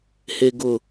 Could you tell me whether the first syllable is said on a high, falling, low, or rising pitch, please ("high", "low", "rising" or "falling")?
low